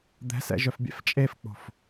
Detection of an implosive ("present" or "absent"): absent